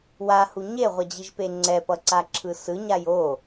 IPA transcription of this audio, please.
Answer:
w a h u ɲ e ʁʷ ʌ d͡ʑ i ʒ p e ŋ͡ǀ ɛ p ʌ ǀ a ǁʰ ɯ s ɯ ɲ a j o

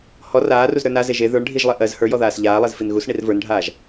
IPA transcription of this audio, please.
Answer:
h ɔ r aː r u z ɾ ə˞ n a z e ʒ e ð ə˞ ɳ ɖʱ i ʒ lˠ e ʔ ɜ z h ə˞ j ɔ ð aː s ʎ aː lˠ e z f i n ɣ u s ɳ i r v ə˞ n ɖʱ aː ʒ

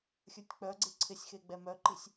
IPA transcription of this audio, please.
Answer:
xʲ ə˞ tʲ k͡p œ ɡ͡ǀ ɪ ǀʰ ɪ sʲ x e ɡ͡b ɛ m œ ǃ i sʲ

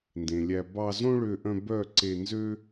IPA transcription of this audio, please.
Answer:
n d ẽ˨ lʲ æ˧ b ɑ˧ z õ˦ ɭ ø˧ ʔ œ̃˧ b œ˦˨ ǀ e˧ n z ø˦

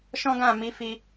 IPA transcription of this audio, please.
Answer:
ʃ ɔ̃˦ ɡ ã˦˨ m i˨˦ f i˧

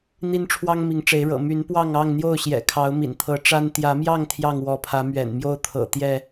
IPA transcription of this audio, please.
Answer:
n̪ i˦ n ʈ͡ʂʰ w ɑ˦ ŋ m i˨˦ ŋ ʈ͡ʂ e˨˦ ɪ̯ ɻ ɤ̰˨˩ m y˨˦ n p w ɑ˥˨ ŋ ɑ˥˨ ŋ n̪ j o˥˨ ʊ̯ ɕ j ɛ̰˨˩ kʰ ɑ˨˦ ʊ̯ m ḭ˨˩ n t̪ʰ ɤ˨˦ ʈ͡ʂ a˦ n t̪ j ä˨˦ m j ɑ˥˨ ŋ t̪ʰ j ɑ˥˨ ŋ w ɔ˨˦ pʰ ä˨˦ m ɥ ɛ̰˨˩ n m j o˦ ʊ̯ t̪ʰ ɤ̰˨˩ t̪ j ɛ˥˨

